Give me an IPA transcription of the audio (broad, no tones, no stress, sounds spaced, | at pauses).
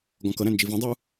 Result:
ɡ ɔ̃ k ʌ ɾ æ̃ n d͡ʒ i v ĩ dˤ u